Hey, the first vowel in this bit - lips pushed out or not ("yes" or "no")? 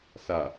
no